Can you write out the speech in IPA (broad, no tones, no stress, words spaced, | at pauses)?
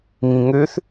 ŋĩŋøθ